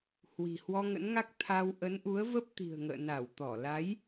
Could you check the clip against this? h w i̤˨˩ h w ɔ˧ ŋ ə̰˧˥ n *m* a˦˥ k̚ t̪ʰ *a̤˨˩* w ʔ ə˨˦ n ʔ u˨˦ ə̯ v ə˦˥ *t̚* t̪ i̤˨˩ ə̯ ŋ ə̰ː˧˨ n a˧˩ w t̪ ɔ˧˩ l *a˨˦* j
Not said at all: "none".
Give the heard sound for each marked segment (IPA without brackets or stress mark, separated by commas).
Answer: ŋ, a˧, p̚, a˨˦